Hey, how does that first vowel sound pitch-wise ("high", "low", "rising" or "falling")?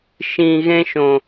low